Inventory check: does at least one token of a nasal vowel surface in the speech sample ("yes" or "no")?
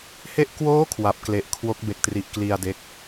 no